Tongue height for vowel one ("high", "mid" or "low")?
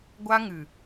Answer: low